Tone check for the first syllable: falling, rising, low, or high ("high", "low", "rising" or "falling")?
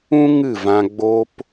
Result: high